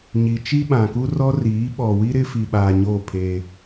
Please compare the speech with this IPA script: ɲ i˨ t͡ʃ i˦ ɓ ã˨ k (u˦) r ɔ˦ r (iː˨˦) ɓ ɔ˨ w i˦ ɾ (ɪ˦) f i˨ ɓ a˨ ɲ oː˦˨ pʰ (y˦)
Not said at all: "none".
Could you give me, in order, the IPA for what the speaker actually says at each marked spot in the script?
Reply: u˦, iː˨˦, ɪ˦, e˦

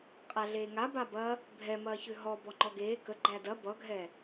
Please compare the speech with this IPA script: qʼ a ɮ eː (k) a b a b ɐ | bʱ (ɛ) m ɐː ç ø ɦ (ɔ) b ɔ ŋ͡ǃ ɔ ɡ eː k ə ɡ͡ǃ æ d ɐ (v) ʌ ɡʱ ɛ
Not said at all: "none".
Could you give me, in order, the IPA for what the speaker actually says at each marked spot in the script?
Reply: ŋ, ɛ, ɔ, b

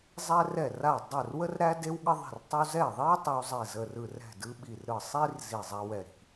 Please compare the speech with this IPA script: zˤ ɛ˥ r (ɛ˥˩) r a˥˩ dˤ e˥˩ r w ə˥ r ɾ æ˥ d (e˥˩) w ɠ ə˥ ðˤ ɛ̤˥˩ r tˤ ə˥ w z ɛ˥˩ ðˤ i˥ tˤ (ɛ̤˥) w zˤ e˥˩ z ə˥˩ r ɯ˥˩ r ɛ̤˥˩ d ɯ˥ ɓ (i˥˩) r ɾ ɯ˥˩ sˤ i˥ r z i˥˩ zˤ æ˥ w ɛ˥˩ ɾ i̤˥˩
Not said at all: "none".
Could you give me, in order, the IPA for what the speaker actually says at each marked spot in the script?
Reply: ɛ˥˩, e˥, ɛ˥, i˥˩

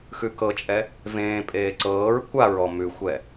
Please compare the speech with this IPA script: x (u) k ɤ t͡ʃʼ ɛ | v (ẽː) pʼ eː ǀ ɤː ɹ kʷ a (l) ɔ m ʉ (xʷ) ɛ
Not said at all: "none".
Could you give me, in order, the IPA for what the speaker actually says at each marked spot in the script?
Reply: ʉ, ẽː, ɹ, xʷ

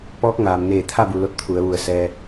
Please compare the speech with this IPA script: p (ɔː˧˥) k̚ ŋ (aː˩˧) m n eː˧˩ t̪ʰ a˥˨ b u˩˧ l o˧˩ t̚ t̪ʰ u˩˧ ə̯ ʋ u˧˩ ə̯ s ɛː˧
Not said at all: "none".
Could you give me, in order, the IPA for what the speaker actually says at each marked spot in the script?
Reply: ɔː˧˥, aː˩

